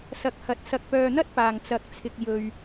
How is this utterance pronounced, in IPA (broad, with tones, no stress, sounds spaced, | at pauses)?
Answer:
s ɐ˨˥ k̚ h ɐ˨˥ t̚ s ɐ˨ k̚ p œː˨ n̪ ɐ˥ t̚ p aː˨˩ ŋ t͡s ɐ˨˥ k̚ t͡sʰ ɪ˨ k̚ j ɵ˨ ɥ